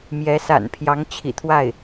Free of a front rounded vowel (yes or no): yes